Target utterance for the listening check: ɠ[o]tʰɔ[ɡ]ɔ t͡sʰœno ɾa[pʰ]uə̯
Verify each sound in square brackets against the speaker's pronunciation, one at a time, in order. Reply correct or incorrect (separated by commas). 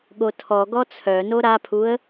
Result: correct, correct, correct